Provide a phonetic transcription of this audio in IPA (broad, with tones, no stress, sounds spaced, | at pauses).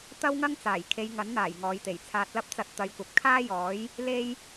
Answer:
t̪ ɐ˥ w ŋ ɐ˥ ŋ t͡s aː˨˩ j kʰ e˧ j ŋ ɐ˨˥ n n̪ aː˨˩ j ŋ ɔː˨˧ j t̪ e˨˩ j t͡sʰ aː˧ t̚ l ɐ˥ p̚ t͡s ɐ˧ t̚ t̪ ɐ˨˧ j kʷ ɐ˨ p̚ kʰ aː˥ j ɔː˨˥ j | l e˥ j